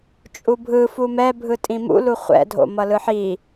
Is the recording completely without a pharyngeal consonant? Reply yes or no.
no